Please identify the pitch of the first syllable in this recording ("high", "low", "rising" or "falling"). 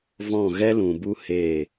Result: falling